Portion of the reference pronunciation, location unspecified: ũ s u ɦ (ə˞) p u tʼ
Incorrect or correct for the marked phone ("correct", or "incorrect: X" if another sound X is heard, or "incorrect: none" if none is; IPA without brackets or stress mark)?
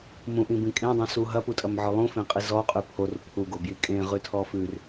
incorrect: ɐ